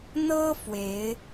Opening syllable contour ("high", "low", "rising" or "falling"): high